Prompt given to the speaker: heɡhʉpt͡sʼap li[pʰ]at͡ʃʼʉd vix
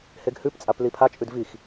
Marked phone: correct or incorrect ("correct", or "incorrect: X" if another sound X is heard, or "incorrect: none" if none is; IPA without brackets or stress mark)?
correct